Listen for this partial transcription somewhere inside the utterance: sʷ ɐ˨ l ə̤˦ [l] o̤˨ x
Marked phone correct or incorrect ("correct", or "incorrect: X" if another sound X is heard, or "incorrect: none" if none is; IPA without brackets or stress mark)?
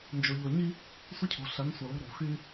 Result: incorrect: ɾ